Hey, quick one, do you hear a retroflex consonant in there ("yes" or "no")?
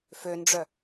yes